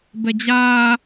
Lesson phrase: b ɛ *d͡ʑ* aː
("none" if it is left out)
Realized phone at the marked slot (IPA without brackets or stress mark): d͡ʑ